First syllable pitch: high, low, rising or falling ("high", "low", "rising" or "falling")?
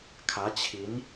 rising